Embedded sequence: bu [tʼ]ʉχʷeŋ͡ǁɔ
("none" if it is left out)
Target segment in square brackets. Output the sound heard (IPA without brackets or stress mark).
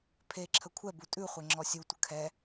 tʼ